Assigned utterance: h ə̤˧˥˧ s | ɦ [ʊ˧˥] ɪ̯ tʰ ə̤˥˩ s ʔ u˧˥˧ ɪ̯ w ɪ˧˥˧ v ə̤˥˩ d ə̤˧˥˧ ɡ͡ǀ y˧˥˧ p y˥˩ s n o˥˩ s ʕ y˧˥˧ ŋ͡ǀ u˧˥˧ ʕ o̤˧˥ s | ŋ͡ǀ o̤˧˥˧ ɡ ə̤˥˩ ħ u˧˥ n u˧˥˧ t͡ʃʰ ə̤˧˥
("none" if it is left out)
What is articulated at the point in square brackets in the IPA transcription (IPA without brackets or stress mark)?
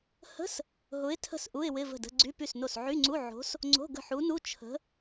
ʊ˧˥